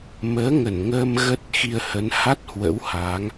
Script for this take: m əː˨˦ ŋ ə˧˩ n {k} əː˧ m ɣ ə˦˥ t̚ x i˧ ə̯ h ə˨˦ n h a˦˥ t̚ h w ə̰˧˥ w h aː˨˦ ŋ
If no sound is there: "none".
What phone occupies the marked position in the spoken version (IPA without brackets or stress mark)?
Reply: ŋ